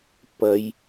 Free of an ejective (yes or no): yes